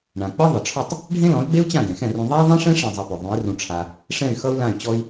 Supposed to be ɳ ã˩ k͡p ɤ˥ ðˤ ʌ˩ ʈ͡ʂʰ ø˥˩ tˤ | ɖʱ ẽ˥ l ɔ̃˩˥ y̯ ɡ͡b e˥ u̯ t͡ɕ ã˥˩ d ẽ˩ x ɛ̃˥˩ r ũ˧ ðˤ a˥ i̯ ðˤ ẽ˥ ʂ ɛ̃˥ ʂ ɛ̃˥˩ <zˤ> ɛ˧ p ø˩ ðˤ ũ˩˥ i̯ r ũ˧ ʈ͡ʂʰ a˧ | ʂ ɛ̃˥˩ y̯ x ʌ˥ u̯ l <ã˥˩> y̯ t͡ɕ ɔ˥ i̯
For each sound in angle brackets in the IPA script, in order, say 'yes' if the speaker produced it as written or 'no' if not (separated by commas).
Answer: yes, yes